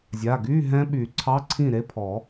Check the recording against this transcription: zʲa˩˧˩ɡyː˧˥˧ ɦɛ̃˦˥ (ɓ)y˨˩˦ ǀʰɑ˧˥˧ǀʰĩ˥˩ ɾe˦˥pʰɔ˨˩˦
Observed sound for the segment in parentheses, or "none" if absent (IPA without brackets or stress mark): ɓ